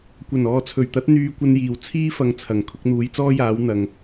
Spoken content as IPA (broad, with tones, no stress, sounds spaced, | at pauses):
kʷ ɐ˨˩ n ɔː˨ t͡sʰ ɵ˨˩ ɥ t̪ ɐ˨˥ t̚ n̪ yː˧ kʷ ɐ˧ n j iː˨˩ w t͡sʰ iː˥ f ɐ˨˧ ŋ t͡sʰ ɐ˨˩ ŋ kʰ ʊ˧ k̚ n̪ uː˨˥ j t͡s ɔː˥ j aː˨˥ w n̪ ɐ˨ ŋ